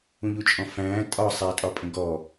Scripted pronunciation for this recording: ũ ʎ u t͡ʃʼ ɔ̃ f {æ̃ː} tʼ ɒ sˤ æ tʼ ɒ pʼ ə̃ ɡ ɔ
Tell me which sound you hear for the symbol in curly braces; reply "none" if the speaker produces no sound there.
æ̃ː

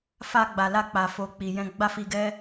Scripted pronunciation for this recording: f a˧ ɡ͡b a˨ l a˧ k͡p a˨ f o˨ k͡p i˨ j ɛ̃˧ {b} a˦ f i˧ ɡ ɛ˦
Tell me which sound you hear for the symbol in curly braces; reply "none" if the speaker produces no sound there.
ɡ͡b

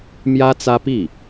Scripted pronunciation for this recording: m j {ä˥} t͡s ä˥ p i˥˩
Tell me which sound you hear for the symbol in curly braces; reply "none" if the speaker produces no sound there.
ä˥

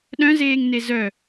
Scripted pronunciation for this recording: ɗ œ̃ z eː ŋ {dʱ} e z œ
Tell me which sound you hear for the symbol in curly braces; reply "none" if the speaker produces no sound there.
n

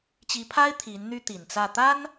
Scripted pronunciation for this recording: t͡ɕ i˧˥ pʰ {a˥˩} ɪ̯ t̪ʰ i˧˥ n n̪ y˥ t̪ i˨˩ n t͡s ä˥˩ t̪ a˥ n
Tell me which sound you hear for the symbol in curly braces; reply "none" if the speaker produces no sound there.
a˥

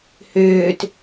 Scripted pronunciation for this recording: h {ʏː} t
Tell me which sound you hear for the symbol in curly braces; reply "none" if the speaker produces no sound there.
ʏː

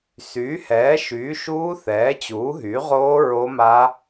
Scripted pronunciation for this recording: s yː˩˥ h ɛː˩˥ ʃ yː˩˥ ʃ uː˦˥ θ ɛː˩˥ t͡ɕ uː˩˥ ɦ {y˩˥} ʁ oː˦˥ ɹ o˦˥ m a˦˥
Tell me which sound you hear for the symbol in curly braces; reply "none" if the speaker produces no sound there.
y˩˥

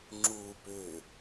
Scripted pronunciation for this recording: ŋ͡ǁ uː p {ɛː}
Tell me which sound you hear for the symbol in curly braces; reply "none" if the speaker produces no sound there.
ʏː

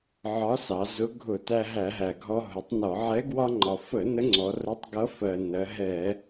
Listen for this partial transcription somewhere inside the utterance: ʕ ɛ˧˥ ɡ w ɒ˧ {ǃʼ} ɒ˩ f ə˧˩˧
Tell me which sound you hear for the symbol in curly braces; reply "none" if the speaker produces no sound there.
ŋ͡ǃ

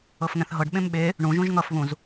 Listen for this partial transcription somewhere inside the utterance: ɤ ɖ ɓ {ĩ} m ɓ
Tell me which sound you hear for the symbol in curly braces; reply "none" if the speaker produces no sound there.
ẽ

